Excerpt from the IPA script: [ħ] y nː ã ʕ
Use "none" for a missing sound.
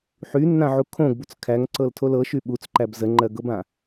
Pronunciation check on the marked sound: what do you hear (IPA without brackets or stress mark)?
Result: ħ